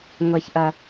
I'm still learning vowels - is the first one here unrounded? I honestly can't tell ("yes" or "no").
yes